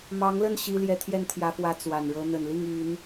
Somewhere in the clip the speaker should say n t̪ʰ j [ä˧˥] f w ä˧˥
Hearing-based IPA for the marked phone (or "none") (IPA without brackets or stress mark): ä˧˥